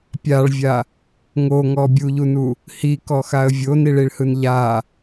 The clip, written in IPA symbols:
pʲ a ɭ vʲ a | ŋ o ŋ ɔ bʲ u ʎ u n u | h i k ɔ x a ə̯ vʲ o n i ɭ i ɭ h ɯ n ʎ a

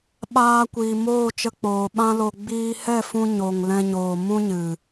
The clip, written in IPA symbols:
ɓ aː˧ kʷ iː˨ m oː˦˨ t͡ʃ ə˧ k͡p oː˨ ɓ ã˦ l o˧ ɡ͡b iː˧ h ɛ˦˨ f ũ˧ ɲ o˨ ŋ l ɛ̃˧ ɲ oː˨ m ũ˦ ɲ ɨ˨

